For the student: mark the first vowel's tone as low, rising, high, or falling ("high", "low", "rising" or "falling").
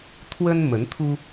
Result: high